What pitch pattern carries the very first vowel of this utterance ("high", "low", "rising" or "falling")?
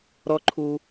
high